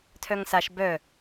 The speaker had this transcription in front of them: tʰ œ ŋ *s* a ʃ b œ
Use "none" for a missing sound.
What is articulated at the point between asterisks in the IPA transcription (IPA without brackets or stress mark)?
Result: s